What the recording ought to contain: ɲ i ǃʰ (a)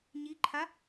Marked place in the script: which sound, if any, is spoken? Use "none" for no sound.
a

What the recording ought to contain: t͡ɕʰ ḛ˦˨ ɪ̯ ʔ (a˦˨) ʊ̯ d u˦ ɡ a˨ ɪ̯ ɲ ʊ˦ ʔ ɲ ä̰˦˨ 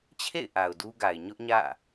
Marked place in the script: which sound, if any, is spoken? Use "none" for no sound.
a˨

